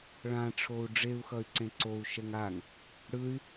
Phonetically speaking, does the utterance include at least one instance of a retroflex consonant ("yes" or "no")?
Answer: yes